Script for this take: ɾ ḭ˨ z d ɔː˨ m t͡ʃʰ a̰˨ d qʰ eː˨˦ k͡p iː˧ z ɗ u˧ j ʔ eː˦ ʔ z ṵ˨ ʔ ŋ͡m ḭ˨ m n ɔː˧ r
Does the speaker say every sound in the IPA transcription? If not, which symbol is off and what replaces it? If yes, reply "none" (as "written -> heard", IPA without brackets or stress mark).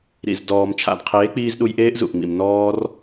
none